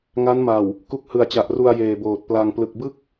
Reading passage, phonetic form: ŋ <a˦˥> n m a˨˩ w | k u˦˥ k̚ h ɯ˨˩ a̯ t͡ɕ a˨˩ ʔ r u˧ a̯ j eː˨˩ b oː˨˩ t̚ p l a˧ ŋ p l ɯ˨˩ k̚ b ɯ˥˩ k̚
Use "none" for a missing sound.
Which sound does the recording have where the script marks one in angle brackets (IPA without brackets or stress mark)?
a˦˥